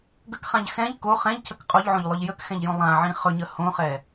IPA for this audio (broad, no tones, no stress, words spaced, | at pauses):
ɡəkχãʎ xɛ̃ʎ ko χɛ̃ʎcʰək qʼoʎʕõʎlˠɵʎ jəkxɛ̃ʎjõ lˠãʕĩ χɵɲə hõχɛ